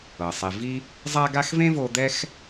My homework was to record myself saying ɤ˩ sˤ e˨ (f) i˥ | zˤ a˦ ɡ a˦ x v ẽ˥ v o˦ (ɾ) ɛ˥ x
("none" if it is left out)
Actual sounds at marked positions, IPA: v, d̪

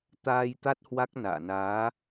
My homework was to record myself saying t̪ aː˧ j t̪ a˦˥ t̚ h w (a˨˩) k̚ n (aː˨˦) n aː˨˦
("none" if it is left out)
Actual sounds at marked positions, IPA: a˦˥, a̰ː˧˨

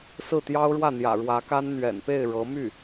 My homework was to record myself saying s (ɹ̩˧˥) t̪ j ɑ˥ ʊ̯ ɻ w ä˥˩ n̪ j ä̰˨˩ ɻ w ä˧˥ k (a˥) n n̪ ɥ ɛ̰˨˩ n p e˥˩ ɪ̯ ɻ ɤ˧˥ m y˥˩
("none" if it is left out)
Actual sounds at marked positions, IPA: ɹ̩˥˩, a˥

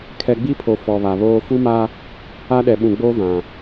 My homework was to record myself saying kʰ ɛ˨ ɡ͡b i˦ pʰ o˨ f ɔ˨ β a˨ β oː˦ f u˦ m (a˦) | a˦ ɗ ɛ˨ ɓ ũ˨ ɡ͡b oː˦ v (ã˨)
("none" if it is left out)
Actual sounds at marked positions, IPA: a˦, ã˨

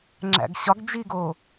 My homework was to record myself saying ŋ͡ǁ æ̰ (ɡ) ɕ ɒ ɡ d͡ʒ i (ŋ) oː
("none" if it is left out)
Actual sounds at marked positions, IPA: ɡ, ɡ

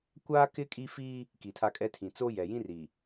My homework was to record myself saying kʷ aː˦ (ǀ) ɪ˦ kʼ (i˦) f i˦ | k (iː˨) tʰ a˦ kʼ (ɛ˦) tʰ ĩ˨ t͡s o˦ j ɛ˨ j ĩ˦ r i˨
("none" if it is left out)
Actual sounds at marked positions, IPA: k, i˦, i˨, ɛ˦

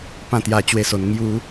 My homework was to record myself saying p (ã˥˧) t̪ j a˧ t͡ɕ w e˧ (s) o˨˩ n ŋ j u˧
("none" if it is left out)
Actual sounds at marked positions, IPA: ã˥˧, s

